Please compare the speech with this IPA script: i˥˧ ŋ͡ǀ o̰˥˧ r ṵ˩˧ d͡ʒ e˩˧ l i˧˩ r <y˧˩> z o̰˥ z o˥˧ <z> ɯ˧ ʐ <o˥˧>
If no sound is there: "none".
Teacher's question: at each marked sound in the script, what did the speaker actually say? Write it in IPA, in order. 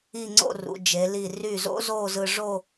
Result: y˧˩, z, o˥˧

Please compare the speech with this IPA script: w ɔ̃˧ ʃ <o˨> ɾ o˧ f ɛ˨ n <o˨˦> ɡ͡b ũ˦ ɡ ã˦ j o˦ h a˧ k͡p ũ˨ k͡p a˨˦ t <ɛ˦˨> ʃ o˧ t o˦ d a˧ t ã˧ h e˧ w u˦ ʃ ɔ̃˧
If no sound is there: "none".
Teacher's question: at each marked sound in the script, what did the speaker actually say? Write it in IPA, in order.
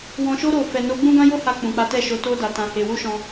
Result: o˦, o˨˦, ɛ˦˨

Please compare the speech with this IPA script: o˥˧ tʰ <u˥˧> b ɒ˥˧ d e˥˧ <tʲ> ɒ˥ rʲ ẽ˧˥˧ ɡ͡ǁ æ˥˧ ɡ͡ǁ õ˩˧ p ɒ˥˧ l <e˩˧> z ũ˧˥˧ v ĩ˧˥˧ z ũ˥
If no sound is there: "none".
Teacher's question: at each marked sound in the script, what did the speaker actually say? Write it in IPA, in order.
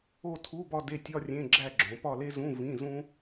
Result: u˧˥˧, tʲ, e˥

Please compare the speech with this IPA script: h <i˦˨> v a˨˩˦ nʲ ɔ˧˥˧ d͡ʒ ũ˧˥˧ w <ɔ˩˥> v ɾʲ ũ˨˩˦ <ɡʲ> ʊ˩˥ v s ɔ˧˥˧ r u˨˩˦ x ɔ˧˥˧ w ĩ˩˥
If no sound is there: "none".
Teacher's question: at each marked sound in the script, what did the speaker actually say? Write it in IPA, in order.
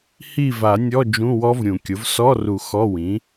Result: i˦˨, ɔ˦˥, kʲ

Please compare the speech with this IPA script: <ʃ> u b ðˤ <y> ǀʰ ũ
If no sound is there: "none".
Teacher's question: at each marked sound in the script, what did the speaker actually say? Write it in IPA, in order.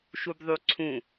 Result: ʃ, y

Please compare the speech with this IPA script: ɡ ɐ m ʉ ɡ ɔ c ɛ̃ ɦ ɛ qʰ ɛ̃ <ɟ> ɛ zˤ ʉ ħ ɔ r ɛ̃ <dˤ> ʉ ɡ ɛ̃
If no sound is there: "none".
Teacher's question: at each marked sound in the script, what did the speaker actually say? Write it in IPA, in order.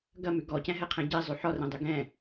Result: ɟ, dˤ

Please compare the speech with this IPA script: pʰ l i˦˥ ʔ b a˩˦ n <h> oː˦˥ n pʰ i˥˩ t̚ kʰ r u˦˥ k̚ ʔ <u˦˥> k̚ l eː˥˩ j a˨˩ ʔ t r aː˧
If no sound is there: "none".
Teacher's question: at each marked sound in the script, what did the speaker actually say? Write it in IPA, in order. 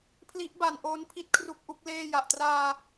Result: ʔ, u˦˥

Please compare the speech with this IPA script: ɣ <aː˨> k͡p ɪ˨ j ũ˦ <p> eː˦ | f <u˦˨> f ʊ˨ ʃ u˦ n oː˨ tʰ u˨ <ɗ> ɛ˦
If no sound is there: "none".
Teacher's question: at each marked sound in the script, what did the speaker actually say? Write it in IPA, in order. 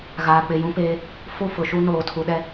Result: aː˨, p, u˦˨, ɗ

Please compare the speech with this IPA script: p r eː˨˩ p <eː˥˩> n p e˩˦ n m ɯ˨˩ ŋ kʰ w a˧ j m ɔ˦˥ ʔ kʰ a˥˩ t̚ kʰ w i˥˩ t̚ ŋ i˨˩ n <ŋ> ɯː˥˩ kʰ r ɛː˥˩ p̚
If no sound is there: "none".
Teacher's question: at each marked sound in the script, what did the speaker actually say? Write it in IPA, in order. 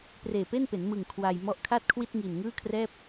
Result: e˥˩, ŋ

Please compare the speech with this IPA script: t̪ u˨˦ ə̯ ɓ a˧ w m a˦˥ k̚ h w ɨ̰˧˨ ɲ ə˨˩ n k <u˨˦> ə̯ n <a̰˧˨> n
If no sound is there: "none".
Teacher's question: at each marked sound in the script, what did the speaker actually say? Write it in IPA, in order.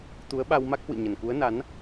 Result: u˨˦, a˨˦

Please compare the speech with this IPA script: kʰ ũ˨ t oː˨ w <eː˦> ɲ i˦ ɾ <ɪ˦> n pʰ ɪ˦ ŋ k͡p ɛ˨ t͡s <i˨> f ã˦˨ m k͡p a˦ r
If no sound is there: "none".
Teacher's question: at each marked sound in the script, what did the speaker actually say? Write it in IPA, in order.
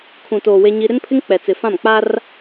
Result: e˦, ɪ˦, ɪ˨

